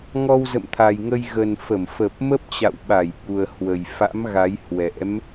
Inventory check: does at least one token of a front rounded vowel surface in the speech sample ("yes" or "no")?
no